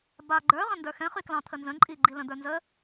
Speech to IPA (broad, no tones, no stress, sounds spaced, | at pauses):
b a ɡ͡ǃ ə˞ ʁ ə̃ n d ə˞ x ɛ̃ χ y k l ɑ̃ t̪ʰ ə n z ə̃ ǃʼ i ɡ͡ǃ i l ə̃ d̪ ə˞ n z ə